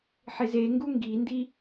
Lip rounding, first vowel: unrounded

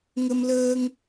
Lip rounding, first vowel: unrounded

